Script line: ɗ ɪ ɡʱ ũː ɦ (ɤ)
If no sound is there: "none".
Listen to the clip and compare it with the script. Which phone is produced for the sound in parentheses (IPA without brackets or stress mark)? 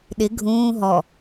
ɔ